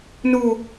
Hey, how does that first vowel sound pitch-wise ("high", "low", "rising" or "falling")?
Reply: falling